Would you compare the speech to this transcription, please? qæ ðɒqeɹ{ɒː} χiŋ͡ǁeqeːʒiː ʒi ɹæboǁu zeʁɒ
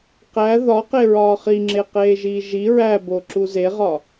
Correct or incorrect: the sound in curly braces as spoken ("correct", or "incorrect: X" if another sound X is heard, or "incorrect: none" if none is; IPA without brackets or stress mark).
correct